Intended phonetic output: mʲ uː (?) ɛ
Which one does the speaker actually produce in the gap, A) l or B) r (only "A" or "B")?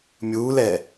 A